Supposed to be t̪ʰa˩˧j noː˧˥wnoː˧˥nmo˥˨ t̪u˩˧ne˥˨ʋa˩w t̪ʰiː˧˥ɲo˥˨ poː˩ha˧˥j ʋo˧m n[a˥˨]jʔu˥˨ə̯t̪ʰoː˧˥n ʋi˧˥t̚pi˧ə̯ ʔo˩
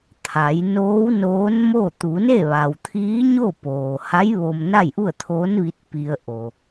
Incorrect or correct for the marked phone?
correct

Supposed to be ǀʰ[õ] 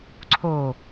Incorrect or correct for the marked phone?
incorrect: o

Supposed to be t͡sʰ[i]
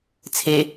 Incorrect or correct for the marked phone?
incorrect: e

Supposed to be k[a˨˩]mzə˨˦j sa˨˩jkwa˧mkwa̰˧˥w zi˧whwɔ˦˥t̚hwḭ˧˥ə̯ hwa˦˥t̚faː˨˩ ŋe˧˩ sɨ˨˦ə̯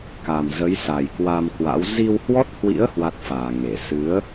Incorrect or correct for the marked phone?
correct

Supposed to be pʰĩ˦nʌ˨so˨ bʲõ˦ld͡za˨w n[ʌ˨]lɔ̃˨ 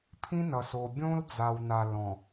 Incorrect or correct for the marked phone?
incorrect: a˨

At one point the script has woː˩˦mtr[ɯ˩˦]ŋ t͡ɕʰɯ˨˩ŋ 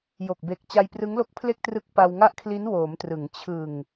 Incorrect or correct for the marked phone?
correct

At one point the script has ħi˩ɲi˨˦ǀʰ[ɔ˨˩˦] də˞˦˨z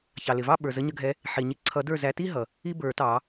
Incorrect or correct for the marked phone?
incorrect: ʌ˨˩˦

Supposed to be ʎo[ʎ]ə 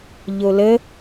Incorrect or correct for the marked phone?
incorrect: l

